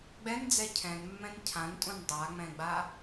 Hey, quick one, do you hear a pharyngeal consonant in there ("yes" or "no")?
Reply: no